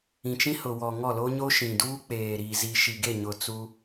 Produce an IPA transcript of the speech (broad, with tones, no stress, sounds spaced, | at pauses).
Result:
ĩ˨ t͡ʃ ĩ˦ h ʊ˨ w ɔ˨ ŋ ɔ˦˨ l o˦ ɲ o˦ ʃ ĩ˨ d uː˦ k͡p eː˨ ɾ iː˨ z i˨ ʃ i˨ ɡ e˦˨ ɲ ʊ˨ t͡s u˦